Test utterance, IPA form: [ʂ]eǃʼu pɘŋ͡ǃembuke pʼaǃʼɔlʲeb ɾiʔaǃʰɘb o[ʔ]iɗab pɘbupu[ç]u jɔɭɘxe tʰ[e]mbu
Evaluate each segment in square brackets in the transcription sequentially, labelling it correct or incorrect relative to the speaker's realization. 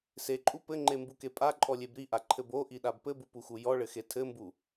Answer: incorrect: s, correct, incorrect: x, incorrect: ɘ

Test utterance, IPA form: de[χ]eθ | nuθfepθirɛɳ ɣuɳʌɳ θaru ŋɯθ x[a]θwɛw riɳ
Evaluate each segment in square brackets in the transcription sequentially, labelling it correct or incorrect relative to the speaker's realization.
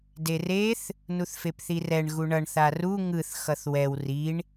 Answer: incorrect: r, incorrect: ʌ

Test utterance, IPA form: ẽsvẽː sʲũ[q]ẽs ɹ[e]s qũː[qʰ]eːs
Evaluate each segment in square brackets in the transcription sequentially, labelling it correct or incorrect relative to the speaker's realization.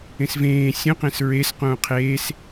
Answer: correct, correct, correct

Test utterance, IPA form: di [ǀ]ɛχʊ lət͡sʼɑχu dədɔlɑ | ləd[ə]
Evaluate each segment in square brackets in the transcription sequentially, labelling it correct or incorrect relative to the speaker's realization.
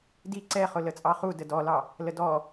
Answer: correct, incorrect: ɔ

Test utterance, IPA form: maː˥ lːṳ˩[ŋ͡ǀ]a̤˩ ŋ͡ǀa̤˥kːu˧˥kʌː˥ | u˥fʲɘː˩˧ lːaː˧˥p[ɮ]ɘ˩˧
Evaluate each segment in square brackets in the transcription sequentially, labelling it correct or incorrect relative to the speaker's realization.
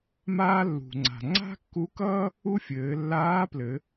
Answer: correct, incorrect: l

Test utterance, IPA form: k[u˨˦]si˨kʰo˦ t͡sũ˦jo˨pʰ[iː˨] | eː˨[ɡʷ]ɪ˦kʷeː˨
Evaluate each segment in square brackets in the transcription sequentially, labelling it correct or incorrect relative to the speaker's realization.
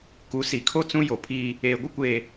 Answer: correct, incorrect: iː˦, correct

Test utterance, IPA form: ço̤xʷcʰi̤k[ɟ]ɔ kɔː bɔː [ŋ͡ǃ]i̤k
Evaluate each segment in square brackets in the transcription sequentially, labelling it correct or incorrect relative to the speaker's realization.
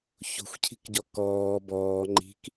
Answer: correct, correct

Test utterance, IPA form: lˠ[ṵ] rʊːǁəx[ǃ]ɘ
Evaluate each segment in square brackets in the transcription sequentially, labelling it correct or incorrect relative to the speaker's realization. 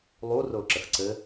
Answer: incorrect: u, incorrect: ǀ

